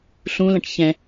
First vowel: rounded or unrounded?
rounded